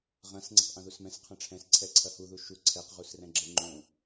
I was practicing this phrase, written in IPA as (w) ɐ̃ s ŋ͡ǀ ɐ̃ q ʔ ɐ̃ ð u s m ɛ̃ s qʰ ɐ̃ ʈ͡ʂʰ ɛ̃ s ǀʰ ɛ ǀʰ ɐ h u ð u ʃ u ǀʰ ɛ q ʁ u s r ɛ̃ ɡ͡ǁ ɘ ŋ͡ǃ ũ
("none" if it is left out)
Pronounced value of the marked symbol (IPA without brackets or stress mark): ʁ